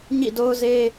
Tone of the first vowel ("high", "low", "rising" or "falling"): falling